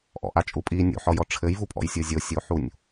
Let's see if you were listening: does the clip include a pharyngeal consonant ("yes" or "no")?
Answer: yes